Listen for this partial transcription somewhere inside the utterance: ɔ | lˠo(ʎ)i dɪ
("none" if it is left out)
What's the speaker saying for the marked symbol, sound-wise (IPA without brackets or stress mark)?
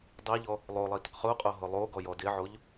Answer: lˠ